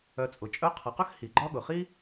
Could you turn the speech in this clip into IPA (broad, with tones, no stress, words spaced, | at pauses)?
œ˧t͡sʼʊ˩˧ t͡ʃʼœ˧˥qʰʌ˩˧qœ˥x hi˩ɡ͡ǃɒ˥ ɠʊ˩ χi˥